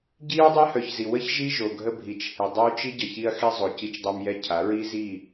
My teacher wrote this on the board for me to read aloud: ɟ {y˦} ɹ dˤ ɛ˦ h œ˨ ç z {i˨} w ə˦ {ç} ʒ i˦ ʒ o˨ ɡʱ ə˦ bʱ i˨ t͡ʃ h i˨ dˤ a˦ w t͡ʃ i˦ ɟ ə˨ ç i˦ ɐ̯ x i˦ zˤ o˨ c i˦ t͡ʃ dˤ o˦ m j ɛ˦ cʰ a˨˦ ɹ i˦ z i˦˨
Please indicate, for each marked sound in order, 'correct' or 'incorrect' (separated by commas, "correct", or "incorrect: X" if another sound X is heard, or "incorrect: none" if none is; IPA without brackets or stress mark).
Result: incorrect: i˦, correct, correct